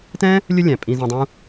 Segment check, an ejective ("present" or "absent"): present